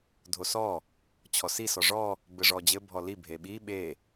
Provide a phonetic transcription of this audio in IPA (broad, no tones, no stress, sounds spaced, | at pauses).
dʱ o s ɔ | t͡ɕʰ ɔ s i s ɔ ʐ ɔ | b ɘ ʐ ɔ d͡ʑ ɘ bʱ ɔ l i bʱ e ɓ i ɓ e